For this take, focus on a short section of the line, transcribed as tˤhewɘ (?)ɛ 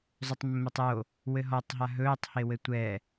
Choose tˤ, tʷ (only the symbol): tʷ